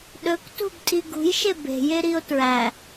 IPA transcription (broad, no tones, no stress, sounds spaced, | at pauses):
ɗ ɵ k t ṳ b tʼ i ɡ ṳ j ʃ e b e̤ j e ɾ i o̯ t ɹ æ